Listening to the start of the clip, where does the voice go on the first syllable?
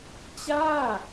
falling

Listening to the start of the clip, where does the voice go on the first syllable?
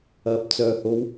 low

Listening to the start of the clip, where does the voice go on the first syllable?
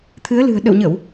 rising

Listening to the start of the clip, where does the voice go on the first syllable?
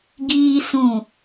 high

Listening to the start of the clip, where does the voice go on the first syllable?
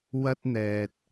high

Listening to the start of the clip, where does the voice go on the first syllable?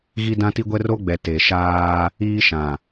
high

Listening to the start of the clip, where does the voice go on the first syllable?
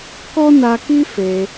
high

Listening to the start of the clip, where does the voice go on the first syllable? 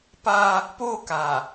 high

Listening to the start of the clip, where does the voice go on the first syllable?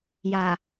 low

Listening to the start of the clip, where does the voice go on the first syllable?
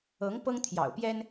rising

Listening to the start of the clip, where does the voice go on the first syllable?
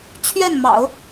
falling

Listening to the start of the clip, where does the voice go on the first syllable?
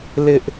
high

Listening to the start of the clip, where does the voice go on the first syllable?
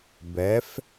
rising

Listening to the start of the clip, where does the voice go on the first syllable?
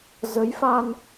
rising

